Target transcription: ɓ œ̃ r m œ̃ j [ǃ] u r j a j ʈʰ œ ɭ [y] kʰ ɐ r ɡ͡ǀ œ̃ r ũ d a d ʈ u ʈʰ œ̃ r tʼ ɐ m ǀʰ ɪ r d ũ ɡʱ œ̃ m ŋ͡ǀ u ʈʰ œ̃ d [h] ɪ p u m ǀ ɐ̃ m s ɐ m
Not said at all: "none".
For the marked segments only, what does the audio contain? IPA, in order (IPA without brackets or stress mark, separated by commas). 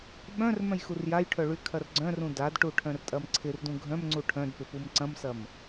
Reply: x, y, p